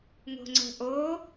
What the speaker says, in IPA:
ŋo̤ŋ͡ǀə̤ ʔo

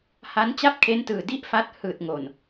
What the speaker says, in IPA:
ha˦˥n t͡ɕa˥˩p̚kʰe˦˥ntɯː˨˩ di˥˩ʔfa˦˥t̚ hɯː˨˩t̚ŋo˨˩n

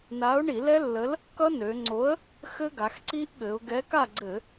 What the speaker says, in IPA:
na˨˥ʊ̯ɳi˧˩˧lɛ˦˥lːə˨˥l | kʌ˦˥nø˩˧ŋ͡ǀo˨˥ə̯ | xɘ˦˥ɡa˩˧xǀi˦˥ʔ ɠɘ˩˧ʊ̯ɡɛ˨˥ka˥˨ɡ͡ǀɘ˧˩˧

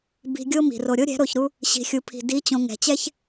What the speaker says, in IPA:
bi̤˧ɡʲo˦ mi̤˨ro˧ ɾʲo˦ɾʲɛ̤˨˦ ɾo˧çɾu˦ | ɕi̤˨xʲu˨pʰi̤˨ di˨˦t͡ɕõ˨ ŋɛ̤˨t͡ɕɛ˦ç

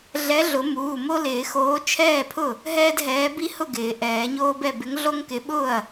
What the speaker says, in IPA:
ɮɛ˨˥ɮʊ˨˩˦ muː˩˧˩mo˦lɪː˨˩˦xoː˨˥ t͡ʃʰɛː˥˩pʰʊ˥˩ | ɦɛː˦dɦɛː˨˥ bi˦hʊ˥˩ɡɪː˨˩˦ ʔɛː˨˩˦ɲoː˦bɛ˥˩ bɪ˨˥ŋɮo˦ŋkɪ˨˥ɓʊː˥˩ɐ̯

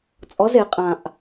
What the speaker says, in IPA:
t͡sʼɔ˨˥ze˩˧ qʼã˨˩ʔ

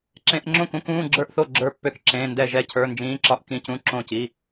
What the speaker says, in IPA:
ǁẽ˧˥˧ʔŋ͡ǁõ˥˨kũ˧˥˧k ũː˧˥˧ɡ͡ǁə˞˥˨ʔθo˥˨ ɡ͡ǁə˞˥˨pːø˥˨kǁẽː˧˥˧ndɛ˥˨ ʒɛ˥˨cʰə˞˧˥˧nd͡ʒĩː˧˥˧ǁɒ˥˨ʔ kĩ˧˥˧cũ˧˥˧ ǁõ˥˨ci˧˥˧

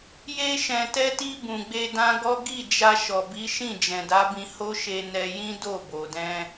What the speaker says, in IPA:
je˧ʃɛ̃˨tɛ˧ti˧ bũ˨ɡ͡be˧dã˦ɡɔ˦ ɡi˦˨d͡ʒa˧ ʃɔ˨bi˨˦ʃĩ˦˨ d͡ʒɛ̃˨da˨˦bĩ˧ ho˦ʃe˧ nɛ˧ jĩ˦do˦˨bo˨dɛ̃˧

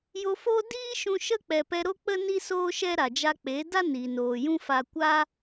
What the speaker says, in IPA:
jo˧fo˦ diː˦ʃũ˧ ʃə˦ k͡pɛ˨pɛ˧ ɾo˦k͡pə˦ ni˦soː˦ʃɛ˦ɾa˨ d͡ʒa˧k͡pe˨˦da˦ ni˨noː˨jũ˦fa˧ kʷa˦

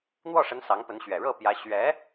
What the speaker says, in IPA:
n̪wɔ˥˩ʂə˧˥n sɑ˧˥ŋpə˧˥nɕɥɛ˨˩ ɻɤ˥˩pjä˧˥ ɕɥɛ˧˥

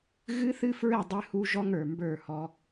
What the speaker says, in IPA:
ɣɨ˦θɨ˦fɹɘ˦˨ dˤɨ˦hu˦ ʒɔ˦ŋə˞˨mbə˞˦˨hɔ˦

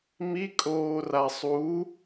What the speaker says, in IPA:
mikʼoːra sˤu

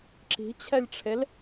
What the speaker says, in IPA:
ǁi̤t͡ɕʰɛlʲʈ͡ʂʰel

